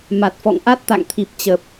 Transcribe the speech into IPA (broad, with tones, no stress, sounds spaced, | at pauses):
m a˨˩ t̚ f ɔ̰˧˨ ŋ ʔ a˦˥ t̚ t̪ a̰˧˨ ŋ t̪ʰ i˦˥ p̚ t͡ɕ ə˦˥ p̚